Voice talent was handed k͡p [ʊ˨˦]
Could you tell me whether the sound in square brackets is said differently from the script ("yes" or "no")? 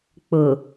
yes